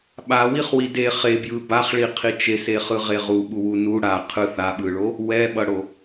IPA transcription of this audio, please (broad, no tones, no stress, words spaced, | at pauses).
ɓawiχwi de χebjɯ baχɭiqʰi t͡ʃeseχɯʁe ʁuɓuwu nu ɽa qʰɯ θaɓɯɭo | wɛɓʌɽo